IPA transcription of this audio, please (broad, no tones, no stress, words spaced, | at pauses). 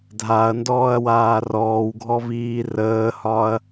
dʱaɐ̯ndɔːɐ̯ waːrɔːwɡʱɔ viːrəːhɒɐ̯